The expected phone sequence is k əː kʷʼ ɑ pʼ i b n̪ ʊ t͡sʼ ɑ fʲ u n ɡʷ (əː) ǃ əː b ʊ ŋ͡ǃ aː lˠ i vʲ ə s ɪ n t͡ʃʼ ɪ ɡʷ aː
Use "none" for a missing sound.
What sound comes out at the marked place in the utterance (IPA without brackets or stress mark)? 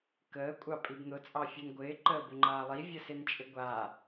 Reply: ɪː